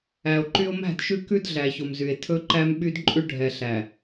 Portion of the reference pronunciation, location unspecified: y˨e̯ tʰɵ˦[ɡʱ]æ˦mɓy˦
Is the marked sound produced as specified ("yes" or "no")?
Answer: no